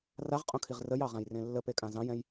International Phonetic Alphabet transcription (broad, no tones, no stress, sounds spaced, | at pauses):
r a ʁ qʼ õ kʰ i ʁ r ə j ɑ ʁ ã j r ẽ lː ə p e kʼ ã z ɑ̃ j ɛ̃ j